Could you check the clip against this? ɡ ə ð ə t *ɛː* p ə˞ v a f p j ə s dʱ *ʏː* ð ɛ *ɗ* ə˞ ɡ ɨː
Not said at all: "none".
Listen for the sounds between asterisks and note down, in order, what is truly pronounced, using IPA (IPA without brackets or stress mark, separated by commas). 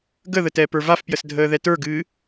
ɛː, əː, t